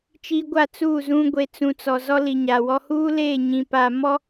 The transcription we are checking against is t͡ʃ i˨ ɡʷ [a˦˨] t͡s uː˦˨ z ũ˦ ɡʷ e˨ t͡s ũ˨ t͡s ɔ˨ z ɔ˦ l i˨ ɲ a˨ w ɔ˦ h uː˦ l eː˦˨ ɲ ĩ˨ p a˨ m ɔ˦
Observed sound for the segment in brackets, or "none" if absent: a˦˨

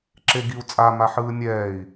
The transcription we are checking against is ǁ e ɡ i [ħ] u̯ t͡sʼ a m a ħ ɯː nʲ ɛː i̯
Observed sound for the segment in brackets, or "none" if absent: none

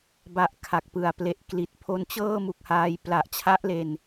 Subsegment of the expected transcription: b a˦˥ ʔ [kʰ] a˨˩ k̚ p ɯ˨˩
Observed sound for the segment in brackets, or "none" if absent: kʰ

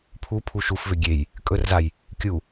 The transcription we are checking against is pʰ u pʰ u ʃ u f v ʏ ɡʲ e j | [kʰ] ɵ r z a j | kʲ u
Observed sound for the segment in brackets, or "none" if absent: kʼ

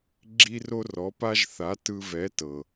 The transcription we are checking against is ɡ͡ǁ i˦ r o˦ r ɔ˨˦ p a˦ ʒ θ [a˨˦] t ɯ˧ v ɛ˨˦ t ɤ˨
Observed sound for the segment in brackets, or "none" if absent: a˨˦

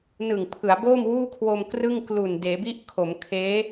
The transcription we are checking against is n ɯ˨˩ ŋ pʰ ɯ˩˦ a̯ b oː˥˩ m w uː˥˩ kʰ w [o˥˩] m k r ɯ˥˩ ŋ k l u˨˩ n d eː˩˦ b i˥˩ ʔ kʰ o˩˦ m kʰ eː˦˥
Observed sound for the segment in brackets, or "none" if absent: o˧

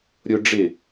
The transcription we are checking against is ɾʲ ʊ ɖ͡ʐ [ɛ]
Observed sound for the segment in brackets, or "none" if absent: ɪ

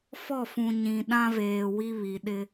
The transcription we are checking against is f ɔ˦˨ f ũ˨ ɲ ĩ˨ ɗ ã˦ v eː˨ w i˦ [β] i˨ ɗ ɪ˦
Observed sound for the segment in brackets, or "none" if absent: β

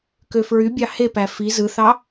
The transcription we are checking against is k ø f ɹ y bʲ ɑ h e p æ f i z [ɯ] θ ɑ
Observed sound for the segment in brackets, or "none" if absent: ɯ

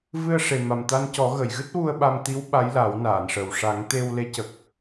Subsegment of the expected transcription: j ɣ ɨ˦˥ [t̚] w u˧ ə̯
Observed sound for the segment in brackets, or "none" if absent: t̚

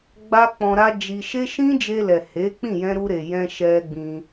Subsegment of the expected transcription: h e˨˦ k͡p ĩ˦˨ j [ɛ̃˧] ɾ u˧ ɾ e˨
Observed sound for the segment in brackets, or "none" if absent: ɛ̃˧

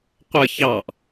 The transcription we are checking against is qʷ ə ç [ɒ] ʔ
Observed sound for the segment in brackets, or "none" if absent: ɑ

